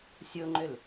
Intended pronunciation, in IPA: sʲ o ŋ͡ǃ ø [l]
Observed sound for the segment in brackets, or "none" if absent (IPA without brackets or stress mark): l